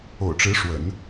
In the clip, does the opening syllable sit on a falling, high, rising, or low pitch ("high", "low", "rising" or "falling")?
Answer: low